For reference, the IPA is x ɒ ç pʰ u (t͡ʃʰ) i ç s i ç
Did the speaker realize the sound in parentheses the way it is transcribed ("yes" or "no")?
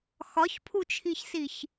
yes